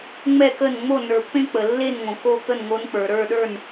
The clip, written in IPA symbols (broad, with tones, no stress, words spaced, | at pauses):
ŋ͡mɛ˥˩kə˥˩nŋ͡mo˥˩ nə˞˨˩˦pːẽ˥ k͡pə˩lːe˥˩nŋõ˩ ko˥˩t̪ə˥˩nŋo˧˥n k͡pə˞˩ ɾə˞˥˩ɗə˞˥˩n